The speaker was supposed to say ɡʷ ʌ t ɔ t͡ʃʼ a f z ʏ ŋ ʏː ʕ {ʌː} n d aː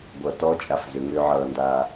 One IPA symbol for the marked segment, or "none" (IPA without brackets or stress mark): ʌː